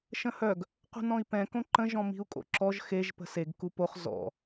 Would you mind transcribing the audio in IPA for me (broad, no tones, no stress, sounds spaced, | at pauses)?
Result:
ʃ ə̃ h œ ɡ | q ṳ n ɔ̃ i̯ p ɛ̃ k õ ǃ ə̃ ʒ ɔ̃ m i̤ u̯ kʼ o̰ ǁ ɔ ʒ x e ʒ p ə̤ s e ɡ k u p o χ z ɔ̰